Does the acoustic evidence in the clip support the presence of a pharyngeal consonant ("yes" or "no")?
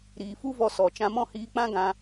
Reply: no